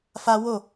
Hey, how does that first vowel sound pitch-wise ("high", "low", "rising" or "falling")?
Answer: high